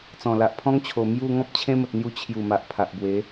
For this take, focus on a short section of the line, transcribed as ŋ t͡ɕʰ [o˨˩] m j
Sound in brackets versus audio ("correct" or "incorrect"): correct